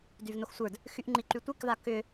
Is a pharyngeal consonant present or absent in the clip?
absent